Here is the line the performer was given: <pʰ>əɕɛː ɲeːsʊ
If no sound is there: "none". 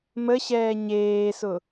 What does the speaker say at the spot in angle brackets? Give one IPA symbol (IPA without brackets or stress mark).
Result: m